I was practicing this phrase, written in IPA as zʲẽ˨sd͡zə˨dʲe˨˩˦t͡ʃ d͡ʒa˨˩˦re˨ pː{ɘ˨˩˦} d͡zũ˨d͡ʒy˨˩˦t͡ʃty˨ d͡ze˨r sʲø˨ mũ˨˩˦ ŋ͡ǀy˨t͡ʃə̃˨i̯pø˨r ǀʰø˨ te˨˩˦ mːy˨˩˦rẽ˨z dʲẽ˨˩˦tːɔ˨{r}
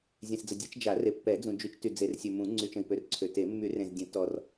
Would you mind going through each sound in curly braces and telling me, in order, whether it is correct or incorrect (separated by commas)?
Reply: incorrect, correct